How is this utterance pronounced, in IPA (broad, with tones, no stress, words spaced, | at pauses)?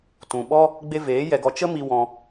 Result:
tũ˨ ɓɔ˦ | ɡ͡be˧veː˨˦ jɛ˧ɡɔ˧ t͡ʃə˦ mi˧wɔ̃˧